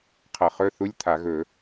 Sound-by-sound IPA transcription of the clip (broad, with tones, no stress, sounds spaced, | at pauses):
qʰ ʌ˧˩˧ χ ɵ˧˥˧ θ u˧˥˧ lʲ t̪ʰ a˧˩˧ ɣ ɵ˧˩˧